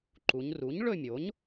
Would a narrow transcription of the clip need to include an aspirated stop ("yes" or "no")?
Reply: no